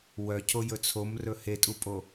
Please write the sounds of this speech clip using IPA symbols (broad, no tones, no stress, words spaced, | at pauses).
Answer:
wœcʰo jɵt͡sʰom rɵhetʼupʼo